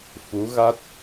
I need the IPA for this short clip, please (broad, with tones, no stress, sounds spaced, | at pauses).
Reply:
f u˧˥ ɣ a˦˥ t̚